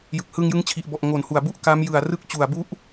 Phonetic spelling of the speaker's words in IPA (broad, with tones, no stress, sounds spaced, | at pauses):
j ɯ˨˩ k̚ h ɯː˧ ŋ j ɯ˦˥ ŋ t͡ɕʰ i˨˩ ʔ b ɔ˨˩ ʔ ŋ o˨˩ n h u˨˩ a̯ b u˥˩ ʔ k a˦˥ m j ɯ˨˩ a̯ r ɯ˥˩ k̚ t͡ɕ u˨˩ a̯ b u˦˥ ʔ